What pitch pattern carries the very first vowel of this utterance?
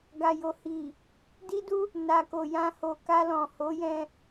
low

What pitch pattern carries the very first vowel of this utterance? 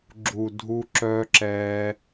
low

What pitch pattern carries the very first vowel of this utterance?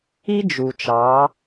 high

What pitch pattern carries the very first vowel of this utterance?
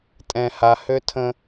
low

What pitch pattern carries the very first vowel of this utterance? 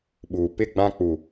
low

